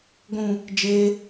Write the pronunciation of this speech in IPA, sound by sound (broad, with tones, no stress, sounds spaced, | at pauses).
ɡʷ ũ˨ | d͡ʒ e˧